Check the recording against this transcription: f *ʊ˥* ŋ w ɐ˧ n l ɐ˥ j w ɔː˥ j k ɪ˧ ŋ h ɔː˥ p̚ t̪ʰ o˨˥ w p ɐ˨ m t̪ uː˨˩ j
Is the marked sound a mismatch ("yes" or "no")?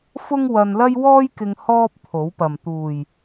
no